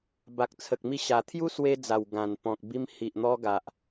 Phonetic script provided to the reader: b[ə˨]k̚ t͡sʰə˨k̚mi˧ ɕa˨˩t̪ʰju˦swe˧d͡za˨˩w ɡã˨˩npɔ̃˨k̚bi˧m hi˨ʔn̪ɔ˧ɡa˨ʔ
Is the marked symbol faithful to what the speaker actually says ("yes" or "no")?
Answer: no